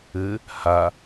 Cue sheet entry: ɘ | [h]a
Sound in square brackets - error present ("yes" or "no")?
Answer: no